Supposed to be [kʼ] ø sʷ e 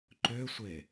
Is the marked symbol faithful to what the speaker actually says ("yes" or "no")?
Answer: no